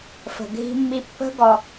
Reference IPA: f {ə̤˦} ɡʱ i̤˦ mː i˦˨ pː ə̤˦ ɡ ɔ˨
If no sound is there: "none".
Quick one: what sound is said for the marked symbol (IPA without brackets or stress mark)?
ə̤˨